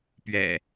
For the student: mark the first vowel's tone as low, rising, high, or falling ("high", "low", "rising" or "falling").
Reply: low